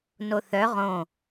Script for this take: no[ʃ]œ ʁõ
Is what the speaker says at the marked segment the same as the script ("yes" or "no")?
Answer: no